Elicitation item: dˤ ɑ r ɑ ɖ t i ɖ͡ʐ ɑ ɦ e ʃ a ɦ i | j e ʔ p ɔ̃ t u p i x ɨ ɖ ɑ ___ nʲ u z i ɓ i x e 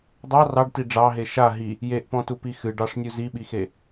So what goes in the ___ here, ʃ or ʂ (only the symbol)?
ʂ